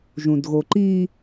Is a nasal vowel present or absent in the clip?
present